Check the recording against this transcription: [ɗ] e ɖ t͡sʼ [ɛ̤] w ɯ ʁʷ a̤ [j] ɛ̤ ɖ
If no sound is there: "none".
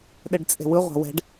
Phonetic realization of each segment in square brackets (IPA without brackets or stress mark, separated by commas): ɗ, e̤, w